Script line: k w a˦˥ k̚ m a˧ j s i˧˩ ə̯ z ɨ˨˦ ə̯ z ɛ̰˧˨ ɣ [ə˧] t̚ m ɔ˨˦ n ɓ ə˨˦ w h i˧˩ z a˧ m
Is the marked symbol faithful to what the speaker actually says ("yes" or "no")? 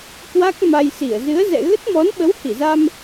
no